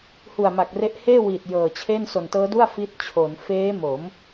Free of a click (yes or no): yes